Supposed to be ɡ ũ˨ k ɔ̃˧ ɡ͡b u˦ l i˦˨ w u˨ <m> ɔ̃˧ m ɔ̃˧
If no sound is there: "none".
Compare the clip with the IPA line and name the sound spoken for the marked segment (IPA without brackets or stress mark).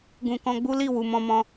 m